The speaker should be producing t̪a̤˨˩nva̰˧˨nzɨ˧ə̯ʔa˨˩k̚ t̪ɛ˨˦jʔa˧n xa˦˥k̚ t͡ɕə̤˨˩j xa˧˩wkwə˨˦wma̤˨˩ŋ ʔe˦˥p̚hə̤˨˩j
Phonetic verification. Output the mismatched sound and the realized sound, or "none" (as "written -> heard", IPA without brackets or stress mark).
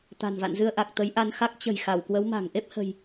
ɛ˨˦ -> ə˨˦